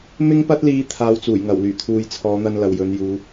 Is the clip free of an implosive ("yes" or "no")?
yes